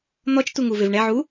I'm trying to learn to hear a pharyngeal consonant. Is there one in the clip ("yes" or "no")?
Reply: yes